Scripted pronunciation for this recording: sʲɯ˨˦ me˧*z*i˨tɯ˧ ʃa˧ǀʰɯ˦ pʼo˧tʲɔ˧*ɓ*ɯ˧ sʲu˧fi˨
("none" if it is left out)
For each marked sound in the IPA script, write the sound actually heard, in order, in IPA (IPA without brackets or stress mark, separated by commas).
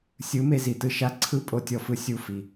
z, f